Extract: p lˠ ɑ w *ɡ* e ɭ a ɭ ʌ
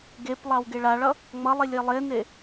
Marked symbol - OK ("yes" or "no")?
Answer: yes